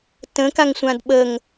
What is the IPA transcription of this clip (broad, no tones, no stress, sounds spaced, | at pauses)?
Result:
t ə̃ k a ŋ sʷ ã d ɓ ə ŋ